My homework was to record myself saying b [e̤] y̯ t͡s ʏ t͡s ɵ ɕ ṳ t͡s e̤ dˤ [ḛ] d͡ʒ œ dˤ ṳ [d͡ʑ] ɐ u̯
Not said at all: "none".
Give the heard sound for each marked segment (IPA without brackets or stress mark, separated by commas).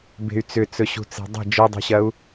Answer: e̤, e̤, ɕ